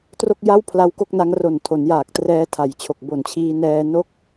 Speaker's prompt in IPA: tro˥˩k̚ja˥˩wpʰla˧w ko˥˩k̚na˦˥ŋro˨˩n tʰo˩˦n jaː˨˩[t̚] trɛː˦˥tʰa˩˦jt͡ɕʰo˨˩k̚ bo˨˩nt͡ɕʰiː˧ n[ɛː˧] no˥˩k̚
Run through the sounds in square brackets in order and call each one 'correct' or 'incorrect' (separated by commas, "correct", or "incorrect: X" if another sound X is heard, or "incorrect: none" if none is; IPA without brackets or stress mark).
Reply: incorrect: k̚, correct